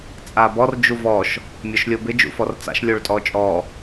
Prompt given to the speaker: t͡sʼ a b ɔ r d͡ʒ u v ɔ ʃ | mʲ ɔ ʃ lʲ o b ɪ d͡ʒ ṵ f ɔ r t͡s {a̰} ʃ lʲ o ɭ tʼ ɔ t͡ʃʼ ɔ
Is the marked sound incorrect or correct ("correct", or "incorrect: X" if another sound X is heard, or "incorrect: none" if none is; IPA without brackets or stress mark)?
correct